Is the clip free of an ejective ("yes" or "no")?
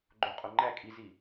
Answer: no